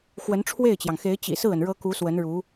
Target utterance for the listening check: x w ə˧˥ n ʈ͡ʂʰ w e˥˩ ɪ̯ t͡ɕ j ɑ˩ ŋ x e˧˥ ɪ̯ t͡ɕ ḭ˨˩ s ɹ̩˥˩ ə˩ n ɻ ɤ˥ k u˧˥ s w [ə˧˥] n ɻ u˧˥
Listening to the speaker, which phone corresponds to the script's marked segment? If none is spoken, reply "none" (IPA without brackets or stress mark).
ə˧˥